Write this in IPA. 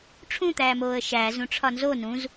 ʈ͡ʂʰũt̪æːmoːə̯ ʃæːz ũʈ͡ʂʰɒnzo nũz

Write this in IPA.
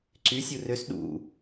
ǀy sʲurøs ɗṵ

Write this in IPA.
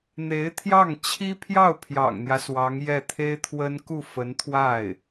n̪e˧˥ɪ̯t̪ʰjɑ˥˩ŋ t͡ɕʰi˥ pʰjɑ˥˩ʊ̯pʰjɑ̰˨˩ŋn̪jä˦ swɑ˧˥ŋjɛ˥˩t̪ʰe˥ɪ̯t̪ʰwə˥n ku˥˩fə˧˥nt̪ʰwa˥˩ɪ̯

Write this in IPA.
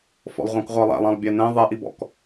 fɔ̰lˠʁʷɑ̃kʁʷɑlˠæ̰lˠ ɑ̃lˠbʲænɛ̃ ðˤɛʔibɔ̰k

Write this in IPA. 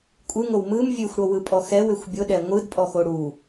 kʷʼɯŋow mɯm vʲʉxʷɽowɯpʼɔ xɛwʏxʷ bʲʊɗɛ ŋʷɯdpʼɔxo ɽu

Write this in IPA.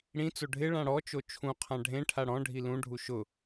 ɽĩt͡so ɖʱɪ ɭãɽɔt͡ʃo t͡ʃʰũqʰã ɖʱẽʈʰa ɽɔ̃ɖʱi lũɖʱu ʃʊ

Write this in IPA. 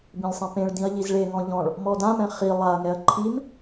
bĩlʲsˤẽpẽɭdĩɐ̯ ʎizɭeŋɔ̃ ʎɔ̃ɭ | mɔdãmɛ̃ χi lˠaɐ̯ŋɛɐ̯ ǃʰim

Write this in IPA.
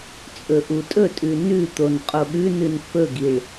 t͡sʼɵʔutʼɵtʼʉ nʉt̪on qʼoɠʉnɨn fɵɡiɭ

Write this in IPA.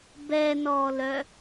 bɛnɔːlœ

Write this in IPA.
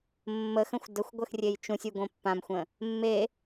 mːəxə̃xʷ dəxʷɡʷəx rʲejt͡ʃũsʲu ɡõpːãmxʷə̃ | mːe

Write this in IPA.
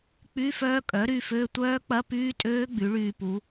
k͡py˧˥˧fœː˦˥ kʼœ˩˥ɾy˦˨fø˧˥˧ tʷœː˦˥k͡pɐ˧˥˧pyː˦˥tʼøː˦˥ ɡ͡by˩˥ɭyː˦˨pu˩˥

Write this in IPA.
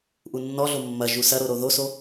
ʔunːɔɮo mːɐʒu sɐɾo ɾoðoso

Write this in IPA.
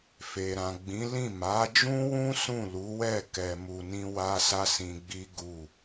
fe˨ɾã˨ɡ͡bĩ˨˦lĩ˦˨ ma˨˦d͡ʒũ˦wũ˦ sũ˦˨lu˨˦wɛ˦˨ kɛ˧mu˧nĩ˦ wa˦sa˦sĩ˧ɡ͡bi˦ ɡu˦˨

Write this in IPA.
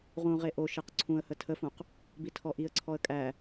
ʁũʁe ʔo ʃeqǀʰũə̯hə tʰəfũq | bitʰɔʔiə̯ǀʰɔə̯ kʼæ

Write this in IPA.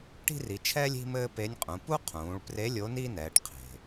ʈi̤˥ri˩˧t͡ʃʰɛː˥lʲ i̤˥mɘː˥pe˧˥nʲqʼũ˩˧ pu˥qʰũː˩˧ɭpre˧˥ lʲo˧˥ni˥nɛː˩˧ʈ qʰe̤˩

